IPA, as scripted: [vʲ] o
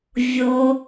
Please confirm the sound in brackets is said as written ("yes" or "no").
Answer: yes